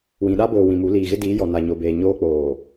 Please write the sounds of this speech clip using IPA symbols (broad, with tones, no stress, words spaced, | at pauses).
wĩ˨ɗa˦boː˨ wĩ˨mu˨˦ liː˨ɣɪ˦diː˨˦ jɔ˨na˨ɲo˨beː˨ ɲoː˦k͡poː˨